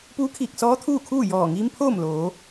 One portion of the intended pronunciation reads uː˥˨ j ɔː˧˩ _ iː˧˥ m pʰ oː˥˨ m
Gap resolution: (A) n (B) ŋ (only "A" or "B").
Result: B